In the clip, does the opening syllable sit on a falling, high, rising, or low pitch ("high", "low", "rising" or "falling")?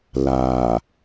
low